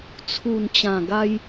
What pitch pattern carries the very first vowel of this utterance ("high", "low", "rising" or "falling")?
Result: low